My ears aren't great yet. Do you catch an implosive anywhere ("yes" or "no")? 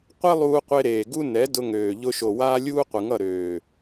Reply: no